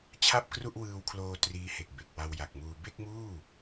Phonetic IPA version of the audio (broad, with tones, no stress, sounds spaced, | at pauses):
t͡ɕʰ a˥˩ p̚ k r u˥˩ ʔ w ɯː˧ w kʰ l oː˧ t r iː˦˥ h e˨˩ k̚ b e˨˩ k̚ w a˧ w j a˨˩ k̚ m uː˧ b e˥˩ k̚ m uː˥˩